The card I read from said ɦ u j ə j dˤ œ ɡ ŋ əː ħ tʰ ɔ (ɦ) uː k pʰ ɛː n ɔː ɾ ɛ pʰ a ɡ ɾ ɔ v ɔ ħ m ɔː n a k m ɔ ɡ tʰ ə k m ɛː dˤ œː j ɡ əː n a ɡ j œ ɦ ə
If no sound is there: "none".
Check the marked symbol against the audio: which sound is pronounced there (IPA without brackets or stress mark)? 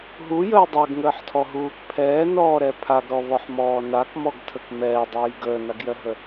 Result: ɦ